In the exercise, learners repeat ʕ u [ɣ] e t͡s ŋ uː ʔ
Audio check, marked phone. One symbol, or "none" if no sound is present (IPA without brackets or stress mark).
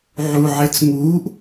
ʕ